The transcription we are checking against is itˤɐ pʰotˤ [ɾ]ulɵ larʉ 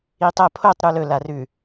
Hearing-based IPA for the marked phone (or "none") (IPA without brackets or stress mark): ɾ